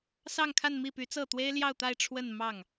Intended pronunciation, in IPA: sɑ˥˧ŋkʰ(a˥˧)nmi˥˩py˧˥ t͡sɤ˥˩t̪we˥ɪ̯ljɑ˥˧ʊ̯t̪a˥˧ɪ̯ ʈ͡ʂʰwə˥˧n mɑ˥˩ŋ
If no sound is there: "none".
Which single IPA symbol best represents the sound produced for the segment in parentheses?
a˥˧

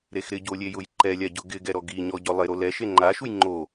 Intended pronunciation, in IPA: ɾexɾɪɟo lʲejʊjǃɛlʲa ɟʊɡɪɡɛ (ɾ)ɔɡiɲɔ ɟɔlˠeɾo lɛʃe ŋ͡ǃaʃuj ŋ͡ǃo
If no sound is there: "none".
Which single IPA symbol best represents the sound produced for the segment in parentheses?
ɾ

